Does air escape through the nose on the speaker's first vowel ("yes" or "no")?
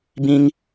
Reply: yes